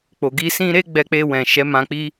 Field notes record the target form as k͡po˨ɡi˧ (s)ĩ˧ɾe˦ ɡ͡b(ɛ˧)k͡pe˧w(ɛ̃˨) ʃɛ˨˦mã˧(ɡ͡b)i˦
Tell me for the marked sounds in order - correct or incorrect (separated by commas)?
correct, correct, correct, incorrect